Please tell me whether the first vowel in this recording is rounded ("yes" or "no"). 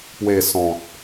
no